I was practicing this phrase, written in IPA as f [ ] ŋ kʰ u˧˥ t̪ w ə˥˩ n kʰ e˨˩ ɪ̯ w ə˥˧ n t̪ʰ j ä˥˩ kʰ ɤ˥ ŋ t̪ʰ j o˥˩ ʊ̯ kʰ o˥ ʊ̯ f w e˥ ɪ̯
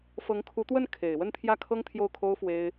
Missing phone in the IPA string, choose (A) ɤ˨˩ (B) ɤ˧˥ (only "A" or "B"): B